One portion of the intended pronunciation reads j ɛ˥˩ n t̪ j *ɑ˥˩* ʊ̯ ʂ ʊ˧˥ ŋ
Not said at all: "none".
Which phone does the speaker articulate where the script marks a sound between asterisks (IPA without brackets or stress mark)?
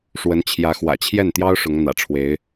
ɑ˥